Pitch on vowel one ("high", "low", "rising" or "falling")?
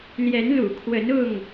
rising